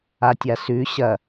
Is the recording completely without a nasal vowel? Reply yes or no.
yes